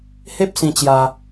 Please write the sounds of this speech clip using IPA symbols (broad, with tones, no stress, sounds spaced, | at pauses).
h e˦ p̚ s ĩ˧ t͡ɕ j a˧